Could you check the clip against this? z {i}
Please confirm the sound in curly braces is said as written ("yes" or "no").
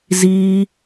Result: no